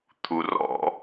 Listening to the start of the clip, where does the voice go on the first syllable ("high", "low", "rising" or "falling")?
low